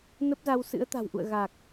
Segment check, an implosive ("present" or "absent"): absent